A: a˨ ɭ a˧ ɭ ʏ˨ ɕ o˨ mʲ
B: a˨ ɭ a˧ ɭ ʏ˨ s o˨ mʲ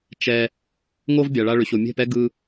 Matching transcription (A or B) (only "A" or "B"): A